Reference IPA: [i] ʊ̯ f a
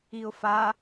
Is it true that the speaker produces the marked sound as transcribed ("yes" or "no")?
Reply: yes